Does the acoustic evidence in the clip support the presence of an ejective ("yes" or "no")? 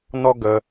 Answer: no